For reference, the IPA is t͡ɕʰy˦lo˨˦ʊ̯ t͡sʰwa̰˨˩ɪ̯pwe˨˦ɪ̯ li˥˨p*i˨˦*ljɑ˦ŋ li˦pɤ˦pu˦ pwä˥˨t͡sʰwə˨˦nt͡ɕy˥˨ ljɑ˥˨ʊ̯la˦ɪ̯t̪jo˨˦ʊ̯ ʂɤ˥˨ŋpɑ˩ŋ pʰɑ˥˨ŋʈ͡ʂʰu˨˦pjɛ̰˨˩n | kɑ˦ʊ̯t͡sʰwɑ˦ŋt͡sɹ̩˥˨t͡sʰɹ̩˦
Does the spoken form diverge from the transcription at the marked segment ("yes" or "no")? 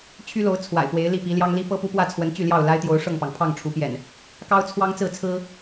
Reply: no